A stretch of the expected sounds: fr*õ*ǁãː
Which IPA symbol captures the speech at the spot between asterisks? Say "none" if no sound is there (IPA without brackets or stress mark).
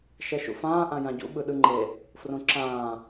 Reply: õ